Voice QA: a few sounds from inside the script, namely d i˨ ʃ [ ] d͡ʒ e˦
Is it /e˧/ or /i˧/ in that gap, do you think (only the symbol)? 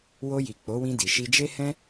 i˧